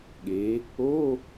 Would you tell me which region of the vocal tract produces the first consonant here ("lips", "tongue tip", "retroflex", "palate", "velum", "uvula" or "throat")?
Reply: velum